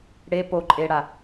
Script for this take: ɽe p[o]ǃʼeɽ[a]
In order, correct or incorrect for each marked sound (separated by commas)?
correct, correct